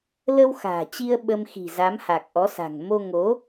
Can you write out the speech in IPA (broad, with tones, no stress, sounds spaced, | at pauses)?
l ə˧ w x a̤ː˨˩ t͡ɕ i˧ ə̯ ɓ ə˧ m x i̤˨˩ z a˨˦ m h a˨˩ k̚ ʔ ɔ˨˦ s a̤˨˩ ŋ m o˧ ŋ o˨˦